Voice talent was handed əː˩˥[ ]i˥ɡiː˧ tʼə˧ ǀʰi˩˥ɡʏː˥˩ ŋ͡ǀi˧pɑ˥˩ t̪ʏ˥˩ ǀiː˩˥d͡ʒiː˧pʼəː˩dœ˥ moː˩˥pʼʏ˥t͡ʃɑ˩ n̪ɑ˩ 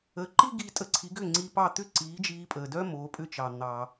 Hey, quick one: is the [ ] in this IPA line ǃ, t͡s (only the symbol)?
ǃ